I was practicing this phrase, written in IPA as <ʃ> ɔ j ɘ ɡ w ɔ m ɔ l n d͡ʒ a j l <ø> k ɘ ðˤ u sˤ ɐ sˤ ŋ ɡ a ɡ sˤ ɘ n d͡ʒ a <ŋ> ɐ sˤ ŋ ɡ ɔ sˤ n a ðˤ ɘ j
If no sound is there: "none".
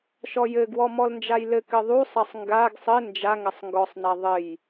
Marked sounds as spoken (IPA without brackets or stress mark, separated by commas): ʃ, ɘ, ŋ